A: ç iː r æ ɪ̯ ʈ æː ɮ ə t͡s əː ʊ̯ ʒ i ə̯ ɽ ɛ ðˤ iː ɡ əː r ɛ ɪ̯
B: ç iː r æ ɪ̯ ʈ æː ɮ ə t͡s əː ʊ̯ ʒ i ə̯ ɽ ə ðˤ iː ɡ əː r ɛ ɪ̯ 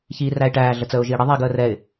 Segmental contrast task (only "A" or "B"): B